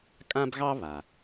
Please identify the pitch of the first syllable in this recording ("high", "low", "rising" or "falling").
high